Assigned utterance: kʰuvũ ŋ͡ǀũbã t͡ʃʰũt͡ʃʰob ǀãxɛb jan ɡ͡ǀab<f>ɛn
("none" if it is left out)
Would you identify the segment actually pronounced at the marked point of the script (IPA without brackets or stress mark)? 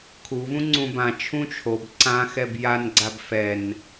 f